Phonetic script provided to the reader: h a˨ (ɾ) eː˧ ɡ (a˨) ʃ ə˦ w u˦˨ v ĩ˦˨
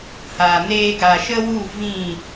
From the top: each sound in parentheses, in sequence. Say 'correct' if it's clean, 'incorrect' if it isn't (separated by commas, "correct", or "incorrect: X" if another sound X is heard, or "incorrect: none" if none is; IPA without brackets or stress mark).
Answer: incorrect: n, correct